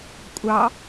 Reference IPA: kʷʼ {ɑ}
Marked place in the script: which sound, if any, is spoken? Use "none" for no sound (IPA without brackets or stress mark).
ɑ